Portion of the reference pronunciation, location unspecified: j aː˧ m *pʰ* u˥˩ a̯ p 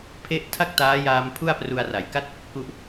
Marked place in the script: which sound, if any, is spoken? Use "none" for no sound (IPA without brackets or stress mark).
pʰ